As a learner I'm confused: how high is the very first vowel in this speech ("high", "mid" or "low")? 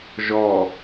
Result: mid